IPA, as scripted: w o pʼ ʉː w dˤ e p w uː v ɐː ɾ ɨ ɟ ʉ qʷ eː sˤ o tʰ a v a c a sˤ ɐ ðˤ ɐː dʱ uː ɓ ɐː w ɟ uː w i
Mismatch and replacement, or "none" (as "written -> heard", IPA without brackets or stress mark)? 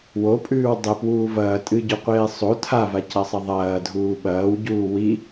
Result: ɾ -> tʼ